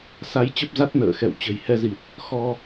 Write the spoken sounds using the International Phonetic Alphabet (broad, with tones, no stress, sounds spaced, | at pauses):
s a˨˦ j t͡ɕ ə˦˥ p̚ z a˦˥ t̚ n ə̰ː˧˨ x ɛ̰˧˨ w t͡ɕ ə̤˨˩ j h ɛ˧ z i˨˩ t̚ | x ɔ˧